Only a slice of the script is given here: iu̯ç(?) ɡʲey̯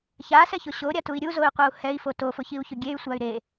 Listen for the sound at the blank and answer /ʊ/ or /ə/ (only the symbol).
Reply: ʊ